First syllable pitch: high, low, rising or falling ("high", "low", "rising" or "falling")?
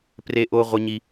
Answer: high